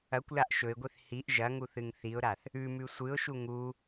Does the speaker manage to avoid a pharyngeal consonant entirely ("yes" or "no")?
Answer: yes